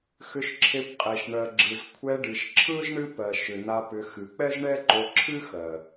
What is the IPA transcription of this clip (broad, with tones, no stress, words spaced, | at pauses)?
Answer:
xʏ˧ʃǁʰe˧kʷqʼe˨ʃ ɳɜ˨ɡ͡ǁɯ˨z kʷʰɛ˧ɖɨ˨ʃǁʰɯ˦z ɳɨ˦pɜ˨ ʃʏ˨n̪a˧ pʏ˧ xɨ˨k͡pɛ˦zɳɛ˦ǃo˧ ǁʰɨ˦xɜ˨